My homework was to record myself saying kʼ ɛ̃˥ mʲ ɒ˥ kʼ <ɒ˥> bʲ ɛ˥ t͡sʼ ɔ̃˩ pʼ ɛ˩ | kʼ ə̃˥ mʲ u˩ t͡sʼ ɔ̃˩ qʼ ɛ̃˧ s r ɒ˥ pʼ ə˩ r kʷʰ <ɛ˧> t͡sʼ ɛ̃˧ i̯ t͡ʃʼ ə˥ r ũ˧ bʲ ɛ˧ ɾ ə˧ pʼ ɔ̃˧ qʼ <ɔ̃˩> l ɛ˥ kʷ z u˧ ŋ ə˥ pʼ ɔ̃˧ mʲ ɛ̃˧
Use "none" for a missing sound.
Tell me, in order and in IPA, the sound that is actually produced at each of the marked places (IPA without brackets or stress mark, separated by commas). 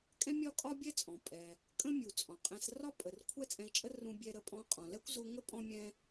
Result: ɒ˥, ɛ˥, ɔ̃˩